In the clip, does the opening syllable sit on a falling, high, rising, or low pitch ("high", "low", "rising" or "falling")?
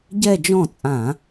falling